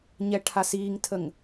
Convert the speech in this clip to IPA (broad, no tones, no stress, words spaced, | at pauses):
ɲɛʈʰasiːŋtʰəŋ